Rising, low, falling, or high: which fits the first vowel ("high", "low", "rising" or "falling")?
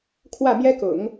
falling